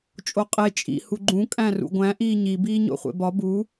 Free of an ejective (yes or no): no